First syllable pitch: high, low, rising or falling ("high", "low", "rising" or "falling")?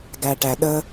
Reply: low